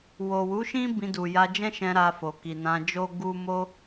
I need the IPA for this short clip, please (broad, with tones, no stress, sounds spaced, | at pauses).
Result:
w o˨ w u˨˦ ʃ ĩ˦ b ĩ˧ d u˨ j a˧ d͡ʒ ɛ̃˦ ʃ ɛ̃˧ ɾ a˧ f o˨ k i˨ n ã˧ d͡ʒ o˦ ɡ u˦ m o˦